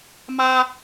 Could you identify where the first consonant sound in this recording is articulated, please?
labial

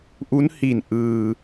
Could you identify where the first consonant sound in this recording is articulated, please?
glottal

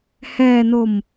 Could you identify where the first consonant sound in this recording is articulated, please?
glottal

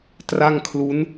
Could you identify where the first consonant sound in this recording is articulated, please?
alveolar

